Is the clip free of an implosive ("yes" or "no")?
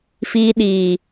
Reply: no